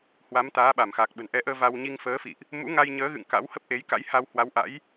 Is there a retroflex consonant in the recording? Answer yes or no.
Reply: no